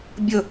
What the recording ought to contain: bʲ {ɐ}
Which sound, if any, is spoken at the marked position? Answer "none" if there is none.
ə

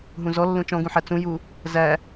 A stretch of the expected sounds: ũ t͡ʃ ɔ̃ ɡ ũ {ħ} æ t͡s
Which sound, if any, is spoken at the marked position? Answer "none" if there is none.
ħ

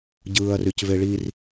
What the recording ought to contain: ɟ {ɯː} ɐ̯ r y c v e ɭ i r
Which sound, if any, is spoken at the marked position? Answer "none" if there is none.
ɯː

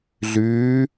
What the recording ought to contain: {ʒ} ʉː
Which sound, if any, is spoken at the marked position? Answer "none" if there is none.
ɮ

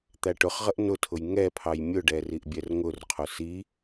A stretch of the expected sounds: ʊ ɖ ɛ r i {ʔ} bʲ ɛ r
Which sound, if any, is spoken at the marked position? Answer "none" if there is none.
ʔ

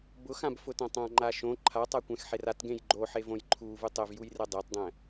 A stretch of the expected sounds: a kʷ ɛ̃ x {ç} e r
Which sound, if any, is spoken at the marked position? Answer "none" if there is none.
ħ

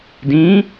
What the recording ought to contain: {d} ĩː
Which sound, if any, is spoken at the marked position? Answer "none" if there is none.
d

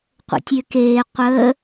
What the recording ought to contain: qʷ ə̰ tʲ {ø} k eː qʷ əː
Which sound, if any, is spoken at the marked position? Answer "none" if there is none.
ø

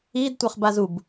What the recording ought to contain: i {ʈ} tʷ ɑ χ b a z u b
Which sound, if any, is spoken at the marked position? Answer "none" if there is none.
d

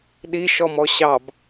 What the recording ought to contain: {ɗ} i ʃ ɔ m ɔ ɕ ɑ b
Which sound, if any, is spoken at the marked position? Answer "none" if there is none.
ɗ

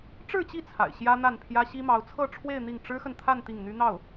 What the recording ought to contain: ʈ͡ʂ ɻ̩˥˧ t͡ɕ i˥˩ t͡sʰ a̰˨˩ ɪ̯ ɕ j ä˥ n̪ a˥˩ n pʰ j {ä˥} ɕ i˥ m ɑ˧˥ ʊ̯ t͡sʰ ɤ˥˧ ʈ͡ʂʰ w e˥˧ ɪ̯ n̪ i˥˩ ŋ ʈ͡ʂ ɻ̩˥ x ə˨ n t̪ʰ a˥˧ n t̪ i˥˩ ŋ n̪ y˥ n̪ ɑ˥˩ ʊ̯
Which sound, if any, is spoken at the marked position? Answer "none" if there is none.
ä˥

